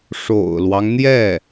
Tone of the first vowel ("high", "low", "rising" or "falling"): low